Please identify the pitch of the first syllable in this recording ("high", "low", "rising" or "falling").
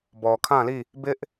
low